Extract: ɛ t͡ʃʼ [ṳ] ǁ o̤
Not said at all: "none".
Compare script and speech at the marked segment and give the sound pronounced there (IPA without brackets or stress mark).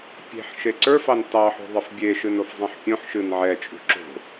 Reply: ṳ